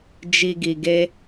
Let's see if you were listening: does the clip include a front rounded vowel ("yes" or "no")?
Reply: no